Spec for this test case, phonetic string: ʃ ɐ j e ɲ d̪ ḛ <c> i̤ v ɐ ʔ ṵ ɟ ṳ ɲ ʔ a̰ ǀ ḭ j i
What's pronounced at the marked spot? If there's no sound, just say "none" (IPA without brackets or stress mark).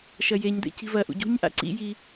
c